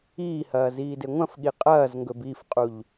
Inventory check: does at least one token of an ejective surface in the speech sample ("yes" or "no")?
yes